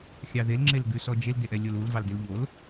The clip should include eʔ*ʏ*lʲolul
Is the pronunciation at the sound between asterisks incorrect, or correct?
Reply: incorrect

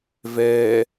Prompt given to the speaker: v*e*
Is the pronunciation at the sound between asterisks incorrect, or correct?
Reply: incorrect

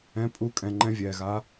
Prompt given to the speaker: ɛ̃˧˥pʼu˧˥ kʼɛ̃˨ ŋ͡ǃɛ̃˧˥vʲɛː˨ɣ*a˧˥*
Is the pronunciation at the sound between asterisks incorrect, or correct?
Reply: correct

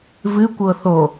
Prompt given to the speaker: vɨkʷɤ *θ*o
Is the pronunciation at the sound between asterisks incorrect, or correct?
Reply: correct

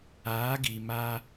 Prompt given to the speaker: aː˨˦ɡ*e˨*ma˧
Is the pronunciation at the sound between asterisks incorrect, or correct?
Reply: incorrect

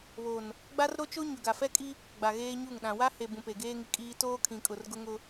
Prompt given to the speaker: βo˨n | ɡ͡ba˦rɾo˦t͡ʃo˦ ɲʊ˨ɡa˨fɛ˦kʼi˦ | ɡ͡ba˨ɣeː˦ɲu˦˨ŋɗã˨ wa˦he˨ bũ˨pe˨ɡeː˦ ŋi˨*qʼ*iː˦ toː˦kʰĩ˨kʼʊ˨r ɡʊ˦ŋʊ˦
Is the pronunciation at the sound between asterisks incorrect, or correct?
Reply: incorrect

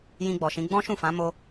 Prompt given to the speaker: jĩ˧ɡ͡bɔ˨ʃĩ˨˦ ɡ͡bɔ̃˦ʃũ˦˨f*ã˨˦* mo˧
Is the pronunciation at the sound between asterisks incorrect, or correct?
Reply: correct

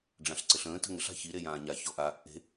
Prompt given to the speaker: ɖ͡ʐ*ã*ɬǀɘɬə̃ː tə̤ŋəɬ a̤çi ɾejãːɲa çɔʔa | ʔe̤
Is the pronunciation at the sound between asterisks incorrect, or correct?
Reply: correct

